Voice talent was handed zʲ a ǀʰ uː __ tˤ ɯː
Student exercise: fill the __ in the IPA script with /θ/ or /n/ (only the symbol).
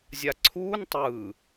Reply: n